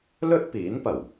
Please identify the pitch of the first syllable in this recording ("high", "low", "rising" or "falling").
high